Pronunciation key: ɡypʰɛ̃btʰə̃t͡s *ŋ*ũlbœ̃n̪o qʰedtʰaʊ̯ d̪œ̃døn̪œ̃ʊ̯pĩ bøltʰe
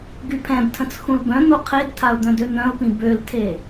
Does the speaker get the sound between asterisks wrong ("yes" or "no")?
yes